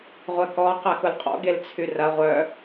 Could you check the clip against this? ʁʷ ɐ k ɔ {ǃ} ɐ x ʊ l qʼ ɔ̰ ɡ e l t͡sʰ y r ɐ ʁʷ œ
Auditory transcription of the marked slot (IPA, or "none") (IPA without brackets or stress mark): q